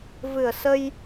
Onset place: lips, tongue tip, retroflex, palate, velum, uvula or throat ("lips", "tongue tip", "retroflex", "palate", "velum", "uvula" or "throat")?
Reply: lips